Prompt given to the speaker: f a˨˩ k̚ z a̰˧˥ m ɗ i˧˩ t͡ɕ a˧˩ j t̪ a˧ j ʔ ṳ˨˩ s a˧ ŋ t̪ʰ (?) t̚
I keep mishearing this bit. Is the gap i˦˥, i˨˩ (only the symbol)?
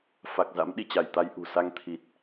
i˨˩